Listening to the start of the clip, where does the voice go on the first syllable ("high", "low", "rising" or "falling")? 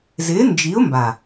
rising